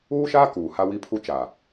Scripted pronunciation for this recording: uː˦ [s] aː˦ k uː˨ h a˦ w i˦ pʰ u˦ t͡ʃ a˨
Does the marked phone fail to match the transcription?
yes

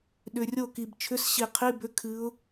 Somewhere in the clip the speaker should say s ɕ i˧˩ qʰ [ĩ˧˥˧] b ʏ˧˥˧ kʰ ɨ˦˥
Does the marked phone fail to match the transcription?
yes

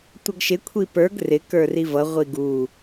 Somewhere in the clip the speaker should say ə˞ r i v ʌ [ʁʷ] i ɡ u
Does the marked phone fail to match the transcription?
no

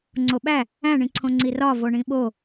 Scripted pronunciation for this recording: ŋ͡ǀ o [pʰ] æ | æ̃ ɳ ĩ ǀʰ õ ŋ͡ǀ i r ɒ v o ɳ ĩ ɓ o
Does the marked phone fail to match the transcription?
yes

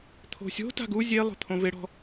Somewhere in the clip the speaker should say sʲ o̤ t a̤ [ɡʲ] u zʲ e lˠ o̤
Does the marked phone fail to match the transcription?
yes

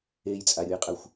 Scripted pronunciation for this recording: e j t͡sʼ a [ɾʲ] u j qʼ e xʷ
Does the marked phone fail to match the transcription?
no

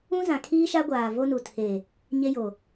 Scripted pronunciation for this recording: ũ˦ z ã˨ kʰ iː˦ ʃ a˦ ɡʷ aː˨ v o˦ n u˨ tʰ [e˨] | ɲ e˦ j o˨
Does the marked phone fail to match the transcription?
no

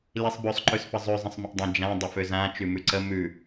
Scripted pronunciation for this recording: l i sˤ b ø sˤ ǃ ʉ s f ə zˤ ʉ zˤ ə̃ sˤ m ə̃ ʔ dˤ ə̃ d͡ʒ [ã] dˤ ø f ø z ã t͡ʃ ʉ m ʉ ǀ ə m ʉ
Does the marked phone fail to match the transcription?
no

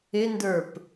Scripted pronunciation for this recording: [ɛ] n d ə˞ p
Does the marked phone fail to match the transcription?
yes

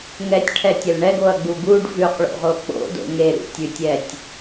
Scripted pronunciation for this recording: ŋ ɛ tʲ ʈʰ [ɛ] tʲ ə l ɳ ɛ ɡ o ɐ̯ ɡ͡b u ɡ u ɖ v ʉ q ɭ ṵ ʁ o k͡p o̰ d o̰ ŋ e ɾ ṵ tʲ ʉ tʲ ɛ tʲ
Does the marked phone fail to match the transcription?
no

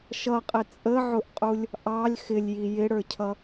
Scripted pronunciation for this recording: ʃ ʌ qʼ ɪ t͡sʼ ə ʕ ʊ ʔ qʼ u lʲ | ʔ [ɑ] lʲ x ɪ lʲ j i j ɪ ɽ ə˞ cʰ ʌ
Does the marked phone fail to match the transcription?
no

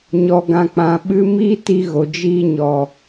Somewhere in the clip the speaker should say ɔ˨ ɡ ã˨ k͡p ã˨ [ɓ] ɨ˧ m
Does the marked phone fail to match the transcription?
no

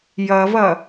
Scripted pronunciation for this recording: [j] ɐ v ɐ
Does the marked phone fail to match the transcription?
no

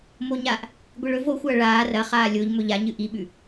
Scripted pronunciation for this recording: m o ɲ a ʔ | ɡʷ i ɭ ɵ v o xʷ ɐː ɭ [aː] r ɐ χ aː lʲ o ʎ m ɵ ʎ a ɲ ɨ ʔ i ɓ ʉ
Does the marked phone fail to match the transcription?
no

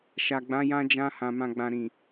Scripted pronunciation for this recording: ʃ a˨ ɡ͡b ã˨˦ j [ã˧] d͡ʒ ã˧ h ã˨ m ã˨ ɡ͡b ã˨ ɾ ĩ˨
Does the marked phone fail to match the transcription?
no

